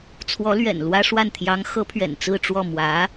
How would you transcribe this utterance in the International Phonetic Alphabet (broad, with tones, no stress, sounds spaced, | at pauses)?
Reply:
t͡sʰ w ɔ˧˥ l ɥ ɛ̰˨˩ n l w ä˥ ʂ w a˥˩ n t̪ʰ j ɑ˧˥ ŋ x ɤ˧˥ pʰ ɥ ɛ̰˨˩ n t͡s ɹ̩˥˧ ʈ͡ʂ w ɔ˥˩ m w ä˧˥